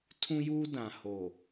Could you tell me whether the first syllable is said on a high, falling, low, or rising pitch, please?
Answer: high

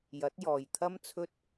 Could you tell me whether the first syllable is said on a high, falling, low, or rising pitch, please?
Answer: rising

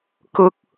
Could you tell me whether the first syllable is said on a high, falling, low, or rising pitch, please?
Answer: high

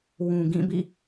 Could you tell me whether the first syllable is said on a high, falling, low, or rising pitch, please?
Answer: low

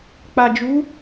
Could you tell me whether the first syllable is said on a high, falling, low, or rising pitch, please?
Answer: low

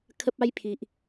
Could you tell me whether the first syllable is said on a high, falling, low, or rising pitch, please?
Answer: high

